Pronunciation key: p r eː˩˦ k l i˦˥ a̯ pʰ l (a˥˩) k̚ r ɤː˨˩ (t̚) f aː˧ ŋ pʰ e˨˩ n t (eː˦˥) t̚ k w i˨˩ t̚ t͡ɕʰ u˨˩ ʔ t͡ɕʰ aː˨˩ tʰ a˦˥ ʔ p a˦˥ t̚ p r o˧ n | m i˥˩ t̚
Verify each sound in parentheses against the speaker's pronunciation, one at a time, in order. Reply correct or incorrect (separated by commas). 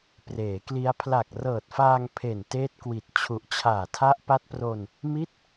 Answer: incorrect, correct, correct